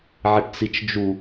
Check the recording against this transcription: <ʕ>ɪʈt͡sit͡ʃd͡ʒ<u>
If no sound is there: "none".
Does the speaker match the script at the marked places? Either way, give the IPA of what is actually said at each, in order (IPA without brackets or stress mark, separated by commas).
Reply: ʕ, u